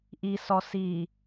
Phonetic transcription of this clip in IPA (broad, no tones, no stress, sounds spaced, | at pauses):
ʔ i s ɔ s i